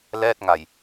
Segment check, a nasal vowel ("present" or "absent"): absent